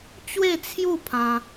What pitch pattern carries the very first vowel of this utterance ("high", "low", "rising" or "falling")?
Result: falling